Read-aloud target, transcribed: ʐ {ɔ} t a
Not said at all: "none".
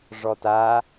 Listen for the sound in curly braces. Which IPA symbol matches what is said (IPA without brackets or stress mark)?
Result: ɔ